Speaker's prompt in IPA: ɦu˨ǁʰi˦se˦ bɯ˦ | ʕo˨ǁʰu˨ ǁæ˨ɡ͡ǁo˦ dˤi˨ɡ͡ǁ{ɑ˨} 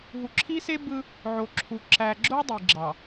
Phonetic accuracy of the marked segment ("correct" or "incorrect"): correct